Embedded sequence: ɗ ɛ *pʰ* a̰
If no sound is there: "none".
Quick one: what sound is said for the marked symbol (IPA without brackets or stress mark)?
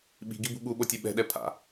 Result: pʰ